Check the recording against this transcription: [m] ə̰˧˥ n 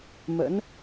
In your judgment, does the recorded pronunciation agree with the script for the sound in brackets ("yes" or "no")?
yes